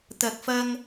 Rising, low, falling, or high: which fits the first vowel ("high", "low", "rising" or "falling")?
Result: low